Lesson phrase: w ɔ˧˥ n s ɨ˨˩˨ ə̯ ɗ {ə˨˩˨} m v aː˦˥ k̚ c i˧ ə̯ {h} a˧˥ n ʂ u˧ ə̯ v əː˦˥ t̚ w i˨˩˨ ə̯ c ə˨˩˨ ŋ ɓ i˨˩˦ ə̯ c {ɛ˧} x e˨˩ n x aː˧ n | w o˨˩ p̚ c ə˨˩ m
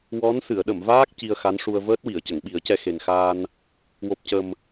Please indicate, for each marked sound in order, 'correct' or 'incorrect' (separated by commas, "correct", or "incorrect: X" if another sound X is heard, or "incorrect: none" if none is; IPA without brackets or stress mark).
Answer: correct, incorrect: x, correct